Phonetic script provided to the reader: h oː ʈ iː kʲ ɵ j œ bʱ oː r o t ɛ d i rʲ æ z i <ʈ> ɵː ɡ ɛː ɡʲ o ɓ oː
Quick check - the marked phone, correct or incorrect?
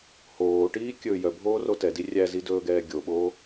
incorrect